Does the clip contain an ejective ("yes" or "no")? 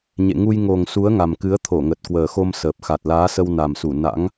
no